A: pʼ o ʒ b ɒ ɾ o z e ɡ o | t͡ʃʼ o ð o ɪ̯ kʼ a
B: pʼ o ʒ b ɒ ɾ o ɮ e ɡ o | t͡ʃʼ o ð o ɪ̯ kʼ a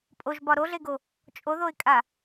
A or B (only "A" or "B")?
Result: B